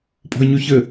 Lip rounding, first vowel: rounded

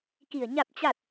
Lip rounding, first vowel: unrounded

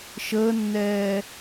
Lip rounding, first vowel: unrounded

